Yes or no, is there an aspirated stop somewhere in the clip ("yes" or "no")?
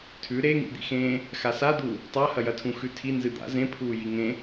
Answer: yes